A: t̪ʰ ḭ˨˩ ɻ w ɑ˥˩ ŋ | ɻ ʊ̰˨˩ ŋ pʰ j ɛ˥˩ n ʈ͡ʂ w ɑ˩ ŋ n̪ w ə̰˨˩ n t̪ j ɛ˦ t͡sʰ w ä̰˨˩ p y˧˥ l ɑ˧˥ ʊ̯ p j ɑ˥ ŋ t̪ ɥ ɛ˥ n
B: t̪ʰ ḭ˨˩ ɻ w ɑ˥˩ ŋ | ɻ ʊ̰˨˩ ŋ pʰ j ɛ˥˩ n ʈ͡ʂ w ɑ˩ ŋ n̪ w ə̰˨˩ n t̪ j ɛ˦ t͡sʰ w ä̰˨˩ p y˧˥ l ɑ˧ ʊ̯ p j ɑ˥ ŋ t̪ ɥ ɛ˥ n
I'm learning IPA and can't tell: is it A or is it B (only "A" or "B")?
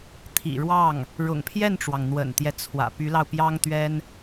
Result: B